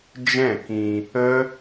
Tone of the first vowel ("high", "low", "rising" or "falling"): falling